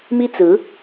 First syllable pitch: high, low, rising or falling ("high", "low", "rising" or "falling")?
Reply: high